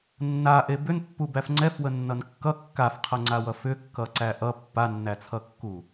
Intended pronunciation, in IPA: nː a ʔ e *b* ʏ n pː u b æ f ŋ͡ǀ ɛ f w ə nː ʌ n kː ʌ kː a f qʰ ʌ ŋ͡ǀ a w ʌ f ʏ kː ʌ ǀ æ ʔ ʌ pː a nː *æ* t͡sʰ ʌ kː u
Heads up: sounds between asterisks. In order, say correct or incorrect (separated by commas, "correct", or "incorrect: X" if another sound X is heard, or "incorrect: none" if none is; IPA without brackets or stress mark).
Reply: correct, correct